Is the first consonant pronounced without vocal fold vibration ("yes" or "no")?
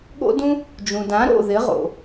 no